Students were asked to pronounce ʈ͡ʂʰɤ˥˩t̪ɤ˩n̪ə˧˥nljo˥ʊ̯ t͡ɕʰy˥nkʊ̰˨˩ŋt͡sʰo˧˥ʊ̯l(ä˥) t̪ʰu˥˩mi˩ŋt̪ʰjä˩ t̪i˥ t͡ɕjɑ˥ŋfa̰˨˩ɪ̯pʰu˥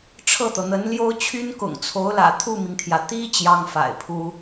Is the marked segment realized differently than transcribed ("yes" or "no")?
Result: yes